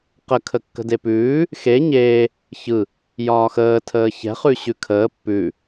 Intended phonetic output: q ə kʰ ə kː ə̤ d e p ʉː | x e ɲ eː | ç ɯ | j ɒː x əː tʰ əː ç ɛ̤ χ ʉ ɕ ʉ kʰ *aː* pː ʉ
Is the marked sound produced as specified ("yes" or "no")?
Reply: no